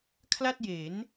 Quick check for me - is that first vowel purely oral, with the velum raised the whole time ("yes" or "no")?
yes